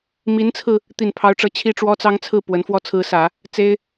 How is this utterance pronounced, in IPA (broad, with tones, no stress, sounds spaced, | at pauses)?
m i˧˥ n t͡sʰ ɹ̩˧ | t̪ i˥˩ n pʰ ɑ˥ ʊ̯ ʈ͡ʂ ɤ˥ t͡ɕʰ i˥˩ ʈ͡ʂ w ɔ˥ t͡s ɑ˥ ŋ t͡sʰ ɹ̩˥˩ p w ə˧˥ n f w ɔ˥˩ t͡sʰ ɹ̩˧˥ s ä˨˩˦ | t͡s e˥ ɪ̯